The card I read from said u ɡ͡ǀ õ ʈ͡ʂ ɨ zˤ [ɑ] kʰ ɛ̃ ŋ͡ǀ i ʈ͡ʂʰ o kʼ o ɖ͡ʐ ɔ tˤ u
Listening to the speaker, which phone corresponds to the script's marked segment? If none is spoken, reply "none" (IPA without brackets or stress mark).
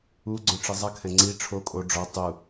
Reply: ɐ